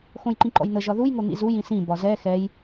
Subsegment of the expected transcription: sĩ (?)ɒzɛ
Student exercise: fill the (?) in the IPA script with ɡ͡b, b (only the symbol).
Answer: b